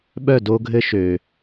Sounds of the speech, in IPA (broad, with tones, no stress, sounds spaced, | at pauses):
ɓ œ˥˨ d o˦ ɡʱ ɘ˦ ʃ øː˩